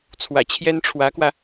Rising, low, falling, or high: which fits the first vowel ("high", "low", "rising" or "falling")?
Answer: low